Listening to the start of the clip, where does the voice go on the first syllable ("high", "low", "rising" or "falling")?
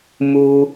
high